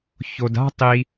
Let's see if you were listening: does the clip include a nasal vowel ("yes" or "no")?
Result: no